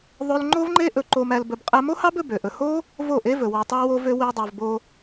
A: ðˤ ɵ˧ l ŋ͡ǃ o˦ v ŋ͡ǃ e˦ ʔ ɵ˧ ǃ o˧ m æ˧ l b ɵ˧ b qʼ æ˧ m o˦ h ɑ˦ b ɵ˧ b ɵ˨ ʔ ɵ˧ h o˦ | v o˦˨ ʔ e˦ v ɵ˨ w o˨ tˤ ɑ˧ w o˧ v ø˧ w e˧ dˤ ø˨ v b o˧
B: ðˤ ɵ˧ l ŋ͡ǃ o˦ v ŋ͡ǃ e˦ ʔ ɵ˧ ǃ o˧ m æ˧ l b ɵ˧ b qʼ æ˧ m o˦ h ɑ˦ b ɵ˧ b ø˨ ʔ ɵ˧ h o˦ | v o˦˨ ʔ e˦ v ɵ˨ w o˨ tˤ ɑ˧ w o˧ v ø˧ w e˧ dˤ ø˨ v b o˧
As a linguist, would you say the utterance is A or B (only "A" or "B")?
B